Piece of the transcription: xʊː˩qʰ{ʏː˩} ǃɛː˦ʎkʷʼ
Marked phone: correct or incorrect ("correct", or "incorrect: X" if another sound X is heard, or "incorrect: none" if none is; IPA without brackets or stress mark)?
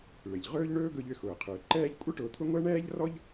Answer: correct